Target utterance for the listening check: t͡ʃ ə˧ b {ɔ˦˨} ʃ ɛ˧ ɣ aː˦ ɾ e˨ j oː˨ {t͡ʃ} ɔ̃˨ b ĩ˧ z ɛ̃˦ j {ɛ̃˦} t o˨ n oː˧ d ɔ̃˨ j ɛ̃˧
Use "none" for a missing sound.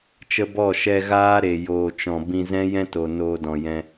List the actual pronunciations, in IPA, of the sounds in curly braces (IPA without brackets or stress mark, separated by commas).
ɔ˦˨, t͡ʃ, ɛ̃˦